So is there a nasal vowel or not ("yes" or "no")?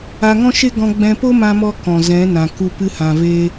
yes